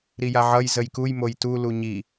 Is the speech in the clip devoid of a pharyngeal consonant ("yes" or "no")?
no